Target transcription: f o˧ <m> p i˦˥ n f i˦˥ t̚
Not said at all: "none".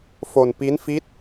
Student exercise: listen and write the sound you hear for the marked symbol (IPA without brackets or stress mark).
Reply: n